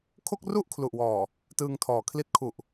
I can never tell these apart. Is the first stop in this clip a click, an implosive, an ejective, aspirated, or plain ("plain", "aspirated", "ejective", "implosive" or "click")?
aspirated